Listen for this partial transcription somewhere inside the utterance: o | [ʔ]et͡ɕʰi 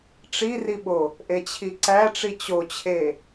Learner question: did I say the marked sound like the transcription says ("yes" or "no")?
yes